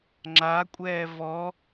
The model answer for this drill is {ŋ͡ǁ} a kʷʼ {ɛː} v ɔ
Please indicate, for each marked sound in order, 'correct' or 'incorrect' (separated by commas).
correct, correct